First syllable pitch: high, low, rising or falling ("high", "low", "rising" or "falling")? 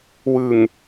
low